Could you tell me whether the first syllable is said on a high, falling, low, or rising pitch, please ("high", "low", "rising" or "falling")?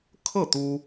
falling